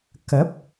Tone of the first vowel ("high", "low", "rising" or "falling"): rising